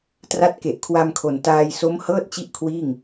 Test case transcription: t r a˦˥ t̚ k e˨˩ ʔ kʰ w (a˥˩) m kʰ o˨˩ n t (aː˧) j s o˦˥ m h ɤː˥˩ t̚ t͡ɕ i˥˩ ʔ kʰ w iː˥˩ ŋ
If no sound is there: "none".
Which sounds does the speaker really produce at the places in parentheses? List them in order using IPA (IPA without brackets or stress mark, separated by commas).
a˧, aː˧